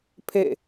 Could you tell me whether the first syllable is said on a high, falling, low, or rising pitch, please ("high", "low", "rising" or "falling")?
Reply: falling